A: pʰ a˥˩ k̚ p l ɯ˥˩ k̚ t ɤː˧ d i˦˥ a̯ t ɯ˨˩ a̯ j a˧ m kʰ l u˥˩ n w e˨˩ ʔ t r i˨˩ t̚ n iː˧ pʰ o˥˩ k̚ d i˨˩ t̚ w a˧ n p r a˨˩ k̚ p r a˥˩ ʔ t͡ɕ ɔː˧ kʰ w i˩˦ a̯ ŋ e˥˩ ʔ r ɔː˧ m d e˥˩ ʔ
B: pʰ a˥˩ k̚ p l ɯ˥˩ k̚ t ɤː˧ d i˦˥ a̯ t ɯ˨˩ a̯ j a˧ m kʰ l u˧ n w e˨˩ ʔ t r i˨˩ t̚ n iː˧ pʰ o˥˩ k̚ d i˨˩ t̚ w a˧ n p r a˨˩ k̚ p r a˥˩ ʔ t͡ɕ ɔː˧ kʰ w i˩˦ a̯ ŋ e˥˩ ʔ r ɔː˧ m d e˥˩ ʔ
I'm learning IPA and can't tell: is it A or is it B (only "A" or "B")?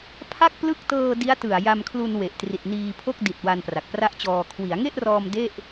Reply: B